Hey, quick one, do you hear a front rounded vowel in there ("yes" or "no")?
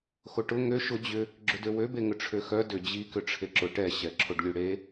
yes